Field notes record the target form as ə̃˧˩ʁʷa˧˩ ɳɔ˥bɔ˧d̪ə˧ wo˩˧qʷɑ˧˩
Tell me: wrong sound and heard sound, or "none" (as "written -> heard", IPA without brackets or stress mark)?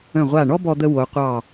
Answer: none